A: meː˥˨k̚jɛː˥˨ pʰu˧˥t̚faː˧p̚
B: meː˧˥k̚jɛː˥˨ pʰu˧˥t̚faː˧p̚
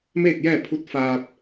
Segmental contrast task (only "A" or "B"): A